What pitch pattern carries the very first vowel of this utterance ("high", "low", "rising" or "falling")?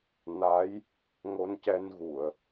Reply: rising